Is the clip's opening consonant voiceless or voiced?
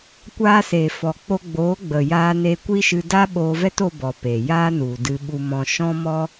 voiceless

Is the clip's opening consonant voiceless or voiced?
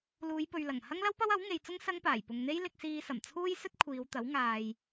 voiced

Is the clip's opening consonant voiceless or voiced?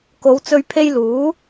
voiceless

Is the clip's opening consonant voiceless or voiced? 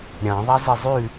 voiced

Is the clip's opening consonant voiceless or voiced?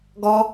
voiced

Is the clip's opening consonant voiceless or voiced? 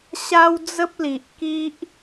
voiceless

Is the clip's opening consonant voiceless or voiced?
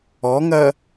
voiced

